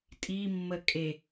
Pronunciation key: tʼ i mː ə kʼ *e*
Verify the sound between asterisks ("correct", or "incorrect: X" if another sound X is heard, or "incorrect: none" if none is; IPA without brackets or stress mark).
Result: correct